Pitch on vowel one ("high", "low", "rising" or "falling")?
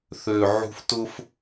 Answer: low